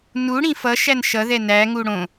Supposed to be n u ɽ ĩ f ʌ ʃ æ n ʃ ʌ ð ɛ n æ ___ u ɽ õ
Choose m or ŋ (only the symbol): ŋ